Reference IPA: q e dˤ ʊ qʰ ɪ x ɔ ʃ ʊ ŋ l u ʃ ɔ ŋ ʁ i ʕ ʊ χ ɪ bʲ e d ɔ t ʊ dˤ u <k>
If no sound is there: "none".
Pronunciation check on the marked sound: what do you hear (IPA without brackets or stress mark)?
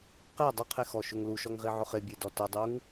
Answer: ŋ